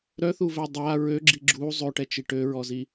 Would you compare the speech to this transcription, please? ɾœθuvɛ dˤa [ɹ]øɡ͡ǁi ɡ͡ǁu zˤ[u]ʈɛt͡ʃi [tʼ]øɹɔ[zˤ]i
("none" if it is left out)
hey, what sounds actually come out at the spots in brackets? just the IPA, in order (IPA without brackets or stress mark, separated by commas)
ɹ, ø, ʈ, z